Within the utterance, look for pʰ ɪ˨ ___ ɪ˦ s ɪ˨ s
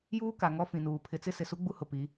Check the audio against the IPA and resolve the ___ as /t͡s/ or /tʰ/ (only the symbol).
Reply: t͡s